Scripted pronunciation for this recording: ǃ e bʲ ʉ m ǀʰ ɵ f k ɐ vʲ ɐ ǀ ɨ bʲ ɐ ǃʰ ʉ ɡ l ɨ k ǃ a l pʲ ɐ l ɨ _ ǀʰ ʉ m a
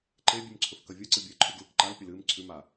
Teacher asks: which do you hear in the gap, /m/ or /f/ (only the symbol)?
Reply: m